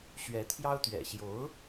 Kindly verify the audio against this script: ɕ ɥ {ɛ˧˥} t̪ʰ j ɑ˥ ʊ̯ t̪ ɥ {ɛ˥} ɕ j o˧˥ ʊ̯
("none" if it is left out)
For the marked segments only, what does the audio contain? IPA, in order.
ɛ˧˥, ɛ̰˨˩

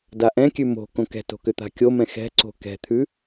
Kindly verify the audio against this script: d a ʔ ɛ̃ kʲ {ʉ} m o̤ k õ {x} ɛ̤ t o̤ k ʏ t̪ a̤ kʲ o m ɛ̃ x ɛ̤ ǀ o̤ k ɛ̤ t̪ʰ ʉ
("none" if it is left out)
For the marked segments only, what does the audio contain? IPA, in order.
ʉ, k

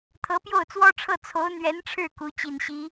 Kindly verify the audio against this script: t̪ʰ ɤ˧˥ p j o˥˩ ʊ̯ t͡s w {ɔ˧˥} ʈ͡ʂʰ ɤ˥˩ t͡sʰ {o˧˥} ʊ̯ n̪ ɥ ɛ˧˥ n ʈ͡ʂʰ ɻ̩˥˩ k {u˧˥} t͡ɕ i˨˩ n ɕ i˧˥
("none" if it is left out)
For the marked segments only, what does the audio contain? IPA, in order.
ɔ˥, o˧˥, u˧˥

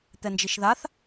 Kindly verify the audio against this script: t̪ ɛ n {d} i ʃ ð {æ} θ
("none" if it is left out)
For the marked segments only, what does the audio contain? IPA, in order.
d͡ʒ, a

